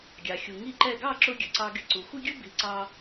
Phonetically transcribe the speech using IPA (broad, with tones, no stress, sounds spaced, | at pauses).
ɡʲ ɑ˩ xʲ u˩ ŋ i˥˩ ǃ ɛ˥˩ ɡ ɑ˥˩ ǁ ʊ˧ ɡʲ ə˩ ǀ ɑ˧ ɡ ɪ˧ ǀ u˩ xʷ ɪ˥ ɡʲ ʊ˥ b i˩˥ ǀ ɑ˧